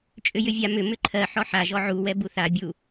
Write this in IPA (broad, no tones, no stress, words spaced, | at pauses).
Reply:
t͡ʃʼʏjʏvʲa mʏ mʏǃʰɜ ħɔħa ʒɔʕu wɛbuθa bʲu